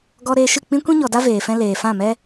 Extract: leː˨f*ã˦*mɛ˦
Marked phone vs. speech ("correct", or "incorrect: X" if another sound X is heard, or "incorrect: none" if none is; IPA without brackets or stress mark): incorrect: ã˦˨